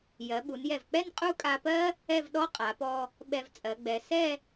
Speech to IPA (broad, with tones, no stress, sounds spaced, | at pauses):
j ɜ˩˧ ɓ u˩˧ n j ɛ˧˩ v k͡p ɛ˥˧ n qʼ u˥˧ kʼ a˧ p ɜ˥ | ɛ˥˧ v ɗ ɔ˥ qʼ a˩˧ p ɔ˧ | ɓ ɛ˧ v t͡sʼ ɜ˩˧ ɡ͡b ɛ˩˧ s ɛ˥˧